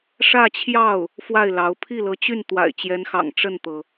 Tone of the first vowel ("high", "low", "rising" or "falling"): falling